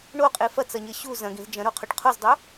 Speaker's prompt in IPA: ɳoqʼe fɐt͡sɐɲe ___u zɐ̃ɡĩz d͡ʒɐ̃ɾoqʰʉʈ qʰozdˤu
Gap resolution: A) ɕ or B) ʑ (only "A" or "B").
A